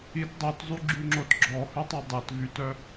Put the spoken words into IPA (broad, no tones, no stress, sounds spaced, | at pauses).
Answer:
i t dˤ o t zˤ y ɡ͡ǁ y ŋ͡ǁ o t ɡ͡ǁ ɔ h ʉ tˤ o dˤ ɛ t v y t œ